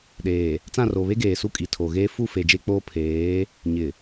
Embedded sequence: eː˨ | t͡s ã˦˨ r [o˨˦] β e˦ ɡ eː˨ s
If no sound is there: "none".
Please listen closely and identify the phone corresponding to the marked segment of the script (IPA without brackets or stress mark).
o˨